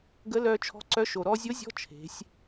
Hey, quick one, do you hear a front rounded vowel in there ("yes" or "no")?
yes